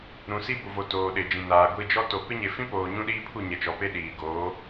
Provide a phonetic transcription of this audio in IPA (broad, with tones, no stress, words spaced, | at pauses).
ɾũ˨si˦bu˨vo˨ toː˨ɗɪ˨d͡ʒĩ˨naː˨ ɡʷi˦˨d͡ʒɔ˦to˨ pɪ˦ɲe˨ fĩ˦poː˨ ɲũ˦ɗiː˦pʰu˦˨ ɲɛ˨t͡ʃɔ˨pe˦ ɗiː˨ ɡoː˨˦